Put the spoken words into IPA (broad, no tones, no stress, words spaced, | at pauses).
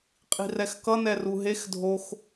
qʼi̤rɛxkʌ nɛruɦex dʱox